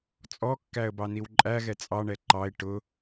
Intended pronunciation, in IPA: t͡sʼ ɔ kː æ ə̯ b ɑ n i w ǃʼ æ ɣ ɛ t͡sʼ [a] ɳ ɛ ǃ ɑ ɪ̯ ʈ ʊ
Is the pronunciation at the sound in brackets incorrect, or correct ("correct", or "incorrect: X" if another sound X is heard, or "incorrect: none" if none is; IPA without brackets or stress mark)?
incorrect: ɑ